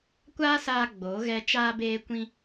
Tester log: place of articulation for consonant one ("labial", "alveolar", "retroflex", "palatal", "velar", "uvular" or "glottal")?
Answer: velar